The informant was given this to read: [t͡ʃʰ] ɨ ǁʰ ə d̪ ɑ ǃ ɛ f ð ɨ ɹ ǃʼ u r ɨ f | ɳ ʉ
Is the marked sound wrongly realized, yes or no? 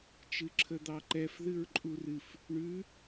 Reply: yes